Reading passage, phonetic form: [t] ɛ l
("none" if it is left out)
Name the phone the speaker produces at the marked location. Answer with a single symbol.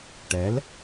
ʈ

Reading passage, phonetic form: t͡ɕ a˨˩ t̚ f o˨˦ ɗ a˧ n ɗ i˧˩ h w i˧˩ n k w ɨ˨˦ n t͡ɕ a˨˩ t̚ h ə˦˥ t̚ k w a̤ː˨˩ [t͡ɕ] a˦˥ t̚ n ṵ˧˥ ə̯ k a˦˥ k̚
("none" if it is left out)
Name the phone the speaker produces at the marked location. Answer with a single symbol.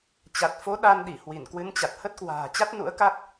t͡ɕ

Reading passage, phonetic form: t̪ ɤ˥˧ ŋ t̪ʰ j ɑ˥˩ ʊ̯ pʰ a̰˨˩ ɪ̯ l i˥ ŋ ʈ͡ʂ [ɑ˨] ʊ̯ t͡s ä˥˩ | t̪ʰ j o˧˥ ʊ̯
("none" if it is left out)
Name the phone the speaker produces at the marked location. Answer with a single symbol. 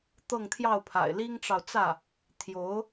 ɑ˨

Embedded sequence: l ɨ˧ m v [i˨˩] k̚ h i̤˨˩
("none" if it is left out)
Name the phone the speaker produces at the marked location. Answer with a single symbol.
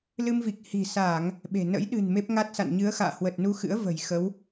i˨˩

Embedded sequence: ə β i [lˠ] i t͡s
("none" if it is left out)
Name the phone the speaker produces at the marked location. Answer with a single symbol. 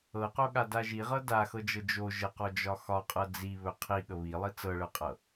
lˠ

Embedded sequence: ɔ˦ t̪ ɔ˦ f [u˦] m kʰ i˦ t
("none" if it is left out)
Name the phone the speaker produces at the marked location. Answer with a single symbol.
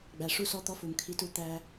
u˨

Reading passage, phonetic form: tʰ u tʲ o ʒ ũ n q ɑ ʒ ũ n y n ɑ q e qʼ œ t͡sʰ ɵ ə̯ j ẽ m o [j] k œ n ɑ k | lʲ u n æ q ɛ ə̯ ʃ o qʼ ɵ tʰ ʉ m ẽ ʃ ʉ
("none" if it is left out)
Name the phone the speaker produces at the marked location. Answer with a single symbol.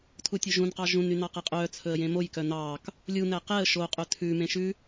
j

